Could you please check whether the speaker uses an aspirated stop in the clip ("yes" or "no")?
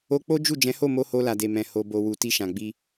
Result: no